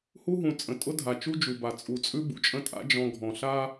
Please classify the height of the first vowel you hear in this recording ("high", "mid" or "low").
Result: high